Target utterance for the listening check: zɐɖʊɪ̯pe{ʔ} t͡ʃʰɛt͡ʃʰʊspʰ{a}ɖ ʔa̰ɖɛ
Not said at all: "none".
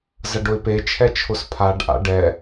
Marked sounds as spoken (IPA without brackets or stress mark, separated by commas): none, a